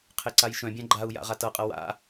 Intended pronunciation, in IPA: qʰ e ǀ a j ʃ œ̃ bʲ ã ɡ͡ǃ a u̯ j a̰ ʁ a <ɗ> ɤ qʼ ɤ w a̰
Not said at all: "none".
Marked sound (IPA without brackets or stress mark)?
t